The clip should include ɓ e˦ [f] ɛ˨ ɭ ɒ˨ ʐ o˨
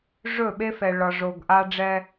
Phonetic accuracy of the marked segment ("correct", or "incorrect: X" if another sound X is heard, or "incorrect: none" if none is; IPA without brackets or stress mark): correct